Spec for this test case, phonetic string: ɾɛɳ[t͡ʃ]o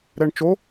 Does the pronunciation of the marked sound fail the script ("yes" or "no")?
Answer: no